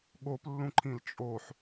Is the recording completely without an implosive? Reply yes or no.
no